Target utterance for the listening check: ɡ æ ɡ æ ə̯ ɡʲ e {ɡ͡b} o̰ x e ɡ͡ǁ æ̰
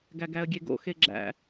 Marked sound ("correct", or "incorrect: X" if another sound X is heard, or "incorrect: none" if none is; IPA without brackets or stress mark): incorrect: ɡ